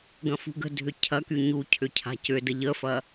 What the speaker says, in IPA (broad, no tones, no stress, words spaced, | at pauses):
ɡɐ̃fṳɡə̤dʱʏ cʰɐky ɲu cʰʏcʰa̤cʏdə ʎəfɐ